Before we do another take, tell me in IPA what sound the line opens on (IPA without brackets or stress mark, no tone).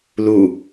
l